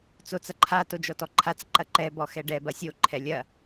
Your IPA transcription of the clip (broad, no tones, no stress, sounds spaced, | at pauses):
t͡s o t͡s ɐ ǃʰ a t o d͡ʒ ɔ t ɔ ǃʰ a t͡s ǃ ɐ ǃ ɛ b ɔ x ɛ ɖ ɛ b ɐ sʲ o ǃʰ ɛ lʲ ɐ